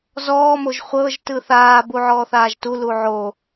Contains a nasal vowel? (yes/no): no